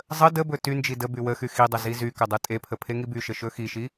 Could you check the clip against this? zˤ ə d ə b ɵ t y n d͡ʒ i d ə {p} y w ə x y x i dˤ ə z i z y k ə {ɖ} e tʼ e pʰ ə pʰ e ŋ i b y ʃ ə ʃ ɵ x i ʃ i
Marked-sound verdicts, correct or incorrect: incorrect, incorrect

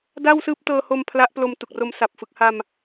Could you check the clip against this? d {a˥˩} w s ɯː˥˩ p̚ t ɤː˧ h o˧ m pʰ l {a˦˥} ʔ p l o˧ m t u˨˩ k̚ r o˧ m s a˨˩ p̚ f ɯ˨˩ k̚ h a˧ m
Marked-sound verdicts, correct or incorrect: correct, correct

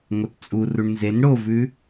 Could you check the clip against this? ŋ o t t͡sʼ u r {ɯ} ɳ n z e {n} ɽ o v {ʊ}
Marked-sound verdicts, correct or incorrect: incorrect, correct, incorrect

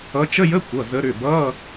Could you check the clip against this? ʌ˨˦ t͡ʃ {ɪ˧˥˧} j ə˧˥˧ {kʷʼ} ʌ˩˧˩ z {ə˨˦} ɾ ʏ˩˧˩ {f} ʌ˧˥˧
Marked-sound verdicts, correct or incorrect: incorrect, incorrect, correct, incorrect

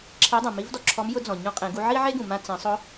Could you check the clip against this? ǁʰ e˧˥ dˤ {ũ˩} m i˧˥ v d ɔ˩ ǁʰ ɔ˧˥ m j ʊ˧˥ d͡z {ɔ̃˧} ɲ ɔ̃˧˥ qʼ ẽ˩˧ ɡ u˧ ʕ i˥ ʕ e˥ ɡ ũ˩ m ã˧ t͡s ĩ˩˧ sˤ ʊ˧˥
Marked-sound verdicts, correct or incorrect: correct, incorrect

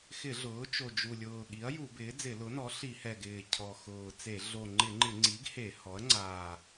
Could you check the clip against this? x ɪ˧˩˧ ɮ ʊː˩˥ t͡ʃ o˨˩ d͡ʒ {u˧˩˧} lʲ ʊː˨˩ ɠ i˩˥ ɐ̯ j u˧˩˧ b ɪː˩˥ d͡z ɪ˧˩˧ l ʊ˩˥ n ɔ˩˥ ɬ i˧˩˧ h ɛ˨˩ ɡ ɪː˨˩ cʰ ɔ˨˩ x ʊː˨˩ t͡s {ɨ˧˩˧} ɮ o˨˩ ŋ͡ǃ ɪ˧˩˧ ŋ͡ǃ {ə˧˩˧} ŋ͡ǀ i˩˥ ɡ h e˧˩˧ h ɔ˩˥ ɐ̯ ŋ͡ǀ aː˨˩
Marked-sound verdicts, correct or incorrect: incorrect, incorrect, incorrect

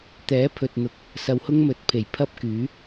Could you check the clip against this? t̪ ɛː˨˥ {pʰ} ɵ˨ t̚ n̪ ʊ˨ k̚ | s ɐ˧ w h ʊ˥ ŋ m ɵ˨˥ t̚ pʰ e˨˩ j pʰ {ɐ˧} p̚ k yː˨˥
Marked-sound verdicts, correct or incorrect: correct, incorrect

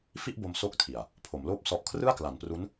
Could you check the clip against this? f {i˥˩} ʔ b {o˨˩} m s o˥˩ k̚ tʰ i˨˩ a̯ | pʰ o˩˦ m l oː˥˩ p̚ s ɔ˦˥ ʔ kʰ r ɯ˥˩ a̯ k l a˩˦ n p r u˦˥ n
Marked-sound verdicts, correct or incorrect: correct, incorrect

